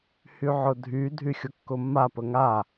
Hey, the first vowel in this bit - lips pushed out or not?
yes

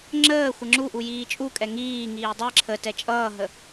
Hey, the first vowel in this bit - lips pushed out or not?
no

